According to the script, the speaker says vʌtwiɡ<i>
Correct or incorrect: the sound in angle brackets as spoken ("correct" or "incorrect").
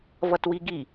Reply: correct